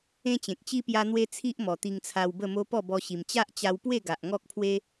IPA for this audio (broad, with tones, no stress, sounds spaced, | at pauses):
ẽ˦ t͡ɕ ẽ˨ k̚ t͡ɕ i˦ p j a˦ n̪ w e˦ t͡sʰ i˦ ʔ m ɔ˨˩ t̪ i˧ ŋ t͡sʰ a˧ w b ə˥˧ m o˦ p ɔ˥˧ b ɔ˧ ɕ i˨˩ m t͡ɕ a˦ ʔ t͡ɕ a˧ w p w e˥˧ ɡ a˨ ʔ ŋ ɔ˦ k̚ pʰ w e˦